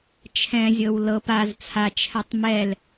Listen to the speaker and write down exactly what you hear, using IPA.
t͡ʃʰɛ̃zʲɤw lɤp az t͡sʰat͡ʃʰɛtˤ mɛl

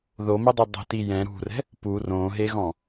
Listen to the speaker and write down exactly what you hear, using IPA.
ðomedˤo dˤɛ̤ti jɛ̃ ɾṳrɛ̤ | pu rõɦeɣɔ̃

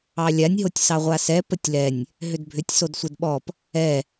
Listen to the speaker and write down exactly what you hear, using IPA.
ɑlʲanʲɦotʲ sɑʁʷasɛ pətʲlɛnʲ | ɦʏdbʱʏtʲ sodsʷɛdɓɔp | ɛ

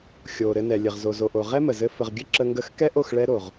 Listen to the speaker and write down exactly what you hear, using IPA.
xʲo˨ ɾɘ˧ nɛ˨ lʲɘ˨ʁzo˨zo˨ʔo˨ ʁɛ˦mə˨zɘ˧ fə˨ʁɡʲɘ˦ ǁə˧ŋɡə˦˨x kɛ˦ʔo˦˨xɭɛ˧ ɾo˨ʁ

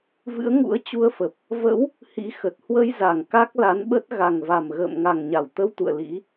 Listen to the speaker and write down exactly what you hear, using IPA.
vɨ̰˧˥ə̯ŋṵ˧˥ə̯t͡ɕu˧ə̯fə˨˩p̚ | və̰˧˥w | hḭ˧˥xə˨˩t̚ hwə˧jza˧˩ŋ ka˦˥k̚la˨˦nɓə˦˥t̚ ɣa˨˩ŋva˨˩mɣə̰ː˧˨mŋa˨˩ŋ ɲa˧˩wt̪ə˧wt̪ṵ˧˨ə̯ lḭ˧˥

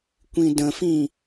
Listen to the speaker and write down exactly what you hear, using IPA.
kʷĩdə̃fĩ

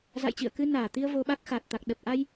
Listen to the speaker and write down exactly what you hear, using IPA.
za̰˧˨jt͡ɕḭ˧˨ə̯ kɨ˧naː˧˩t̪i˧ə̯ vo˧ɓa˦˥k̚xa˨˩t̚ t̪a˨˩k̚ ɗə˨˩p̚ʔa˧j

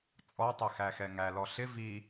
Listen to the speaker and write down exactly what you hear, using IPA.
t͡sʼɔtˤɛ xæxɛŋælɔ ɬɪ vi

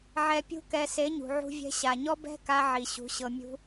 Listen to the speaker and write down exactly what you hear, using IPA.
ʕɛ˨pʲṳ˧kɛ˨ se˨˦ɲṳ˨ʕṳ˧vʲɛ̤˧ ɕa˨ɲɔ˦ bɛ̤˦ka˧ ʕi˨ɕṳ˨˦ ɕɤ˧mʲṳ˦

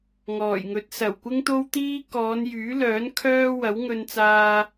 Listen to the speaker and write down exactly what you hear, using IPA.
ŋɔː˨˩jŋɵ˨˥t̚ sɐ˨˩wkʷɪ˥ŋt̪o˥wt̪iː˥ kɔː˨˧njyː˨˥lœː˨˥n kʰœː˥ wɐ˨˥wŋɵ˧nt͡saː˧

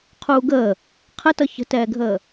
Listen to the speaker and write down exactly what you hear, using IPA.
qʰuːɡəː | qʰətʌ çə̤tɛːɡʱəː

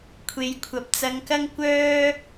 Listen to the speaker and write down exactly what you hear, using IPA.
kʷʰe˨˧jkʷʰɐ˨˥p̚ t͡sɐ˧ŋkɐ˥ŋ kʷœː˥

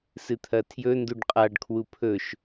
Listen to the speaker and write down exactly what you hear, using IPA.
sɨt̪ʰɐtʰjɵ nduɖqʼaɖ kʰwupʰɵʃ

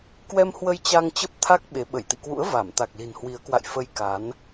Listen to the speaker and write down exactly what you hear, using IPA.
kwɛ˧mhwə˧j t͡ɕa˧ŋt͡ɕə˦˥p̚t̪ʰa˦˥k̚ ɓe˨˦ ɓə˧˩jt̪ḭ˧˨kwṵ˧˥ə̯ va˧˩m t̪a˨˩k̚li̤˨˩nhwi˨˦ə̯kwa̰˧˨j fə˧jka˨˦n

